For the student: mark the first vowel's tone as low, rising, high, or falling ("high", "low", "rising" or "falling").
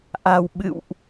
low